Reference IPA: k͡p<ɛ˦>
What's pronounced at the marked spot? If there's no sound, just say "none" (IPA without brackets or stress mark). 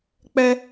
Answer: ɛ˦